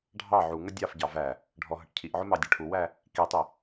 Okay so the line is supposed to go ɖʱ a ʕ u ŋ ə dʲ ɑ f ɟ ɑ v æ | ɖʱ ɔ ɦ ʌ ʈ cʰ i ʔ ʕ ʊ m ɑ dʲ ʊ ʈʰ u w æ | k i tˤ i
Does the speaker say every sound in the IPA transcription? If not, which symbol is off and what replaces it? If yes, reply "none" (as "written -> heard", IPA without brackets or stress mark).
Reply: a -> ɑ